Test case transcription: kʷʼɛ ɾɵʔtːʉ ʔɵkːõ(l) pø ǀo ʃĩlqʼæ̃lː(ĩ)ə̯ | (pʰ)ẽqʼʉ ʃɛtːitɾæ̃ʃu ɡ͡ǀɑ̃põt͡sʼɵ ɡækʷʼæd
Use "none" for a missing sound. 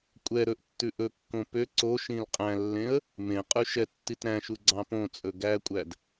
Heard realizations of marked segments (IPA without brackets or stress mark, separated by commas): none, ẽ, m